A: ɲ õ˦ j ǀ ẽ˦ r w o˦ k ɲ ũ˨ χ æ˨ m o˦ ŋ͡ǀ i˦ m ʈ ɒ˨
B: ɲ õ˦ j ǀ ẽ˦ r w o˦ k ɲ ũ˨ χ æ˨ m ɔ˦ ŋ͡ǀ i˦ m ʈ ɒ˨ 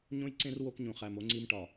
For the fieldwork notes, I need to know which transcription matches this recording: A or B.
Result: A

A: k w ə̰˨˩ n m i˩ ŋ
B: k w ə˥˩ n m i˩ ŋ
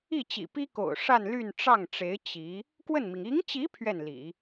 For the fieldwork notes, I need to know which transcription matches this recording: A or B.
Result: B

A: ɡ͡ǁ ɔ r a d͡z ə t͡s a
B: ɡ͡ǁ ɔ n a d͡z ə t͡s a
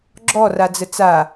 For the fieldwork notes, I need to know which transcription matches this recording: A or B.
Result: A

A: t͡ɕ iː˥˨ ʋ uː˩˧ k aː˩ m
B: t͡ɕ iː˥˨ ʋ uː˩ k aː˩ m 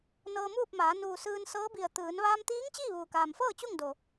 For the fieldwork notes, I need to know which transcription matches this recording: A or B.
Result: B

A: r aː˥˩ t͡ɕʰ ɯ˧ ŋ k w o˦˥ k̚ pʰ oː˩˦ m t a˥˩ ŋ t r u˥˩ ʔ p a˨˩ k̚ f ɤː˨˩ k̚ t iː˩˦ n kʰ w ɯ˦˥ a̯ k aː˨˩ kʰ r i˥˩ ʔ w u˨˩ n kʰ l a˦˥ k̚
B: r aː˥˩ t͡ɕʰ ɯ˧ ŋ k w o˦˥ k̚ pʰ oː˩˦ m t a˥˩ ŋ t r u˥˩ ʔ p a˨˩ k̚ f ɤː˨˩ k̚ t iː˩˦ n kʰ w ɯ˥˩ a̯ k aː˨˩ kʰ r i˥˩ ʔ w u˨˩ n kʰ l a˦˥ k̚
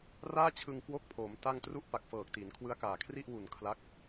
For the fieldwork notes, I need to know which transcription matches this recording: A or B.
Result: A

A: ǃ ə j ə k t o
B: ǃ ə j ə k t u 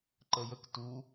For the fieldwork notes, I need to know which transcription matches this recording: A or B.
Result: B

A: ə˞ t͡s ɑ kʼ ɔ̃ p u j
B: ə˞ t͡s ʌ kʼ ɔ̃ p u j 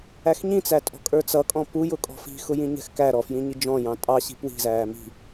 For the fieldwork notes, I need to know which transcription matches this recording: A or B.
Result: B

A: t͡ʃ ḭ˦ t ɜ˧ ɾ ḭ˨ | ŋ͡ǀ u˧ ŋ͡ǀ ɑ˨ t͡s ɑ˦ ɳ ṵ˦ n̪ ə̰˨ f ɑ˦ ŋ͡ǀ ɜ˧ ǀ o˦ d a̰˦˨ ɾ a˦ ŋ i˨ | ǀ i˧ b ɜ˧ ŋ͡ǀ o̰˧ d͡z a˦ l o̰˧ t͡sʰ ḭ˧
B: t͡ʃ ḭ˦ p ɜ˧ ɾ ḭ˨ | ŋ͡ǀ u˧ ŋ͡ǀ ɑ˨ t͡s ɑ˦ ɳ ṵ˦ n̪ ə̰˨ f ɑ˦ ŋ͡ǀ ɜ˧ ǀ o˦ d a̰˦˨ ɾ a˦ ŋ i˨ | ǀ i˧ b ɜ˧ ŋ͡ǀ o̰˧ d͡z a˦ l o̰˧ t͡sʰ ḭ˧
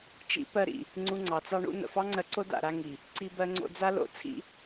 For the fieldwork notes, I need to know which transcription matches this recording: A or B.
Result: B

